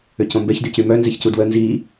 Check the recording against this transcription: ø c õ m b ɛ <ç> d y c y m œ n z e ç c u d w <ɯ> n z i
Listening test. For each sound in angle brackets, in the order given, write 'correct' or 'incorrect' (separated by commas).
correct, incorrect